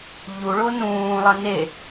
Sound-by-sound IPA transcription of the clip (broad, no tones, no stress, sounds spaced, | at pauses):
ʎ u ɭ o n ũː lˠ ʌ n e